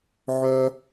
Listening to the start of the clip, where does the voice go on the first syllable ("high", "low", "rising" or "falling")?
high